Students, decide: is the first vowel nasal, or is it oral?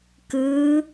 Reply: oral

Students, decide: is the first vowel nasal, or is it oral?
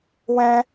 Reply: nasal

